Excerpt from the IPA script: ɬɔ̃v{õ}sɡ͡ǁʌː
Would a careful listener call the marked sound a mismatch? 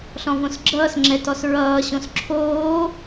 no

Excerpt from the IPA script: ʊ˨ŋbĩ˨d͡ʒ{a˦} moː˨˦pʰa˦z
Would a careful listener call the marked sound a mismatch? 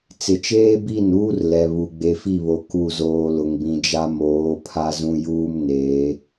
no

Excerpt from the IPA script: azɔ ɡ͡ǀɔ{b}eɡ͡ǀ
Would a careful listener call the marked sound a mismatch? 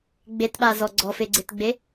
yes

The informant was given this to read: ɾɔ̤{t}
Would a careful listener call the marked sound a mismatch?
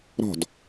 yes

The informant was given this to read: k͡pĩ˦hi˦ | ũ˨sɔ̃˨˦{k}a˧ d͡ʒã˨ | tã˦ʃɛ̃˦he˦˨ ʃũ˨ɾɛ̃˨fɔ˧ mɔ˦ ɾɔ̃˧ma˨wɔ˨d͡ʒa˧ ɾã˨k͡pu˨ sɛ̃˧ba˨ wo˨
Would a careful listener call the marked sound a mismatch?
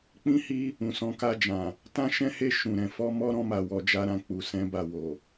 no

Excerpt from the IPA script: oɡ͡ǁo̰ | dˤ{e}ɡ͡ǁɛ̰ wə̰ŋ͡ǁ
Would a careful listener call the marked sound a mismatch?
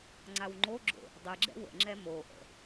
yes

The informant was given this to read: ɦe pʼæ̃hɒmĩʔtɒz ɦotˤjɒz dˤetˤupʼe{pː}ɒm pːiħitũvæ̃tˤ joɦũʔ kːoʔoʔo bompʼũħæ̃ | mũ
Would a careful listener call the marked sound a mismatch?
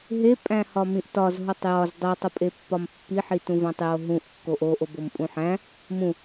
no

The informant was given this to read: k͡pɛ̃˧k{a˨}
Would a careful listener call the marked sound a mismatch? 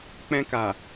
no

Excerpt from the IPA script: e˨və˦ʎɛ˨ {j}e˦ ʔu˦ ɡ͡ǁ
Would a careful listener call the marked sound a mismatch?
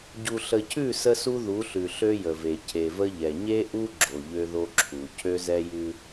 yes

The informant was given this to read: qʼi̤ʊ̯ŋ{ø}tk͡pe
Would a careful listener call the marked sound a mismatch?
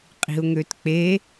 no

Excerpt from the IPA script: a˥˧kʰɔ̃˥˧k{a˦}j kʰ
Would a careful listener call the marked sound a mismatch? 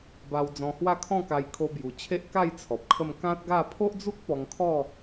yes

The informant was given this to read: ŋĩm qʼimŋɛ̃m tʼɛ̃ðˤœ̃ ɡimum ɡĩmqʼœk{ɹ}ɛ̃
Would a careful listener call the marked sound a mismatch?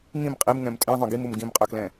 yes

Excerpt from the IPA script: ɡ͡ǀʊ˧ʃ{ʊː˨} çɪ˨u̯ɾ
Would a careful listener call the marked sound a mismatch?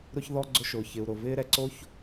no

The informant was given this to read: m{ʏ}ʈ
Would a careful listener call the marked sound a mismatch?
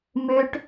no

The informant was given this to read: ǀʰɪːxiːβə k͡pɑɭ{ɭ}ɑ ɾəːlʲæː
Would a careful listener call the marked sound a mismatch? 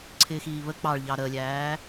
yes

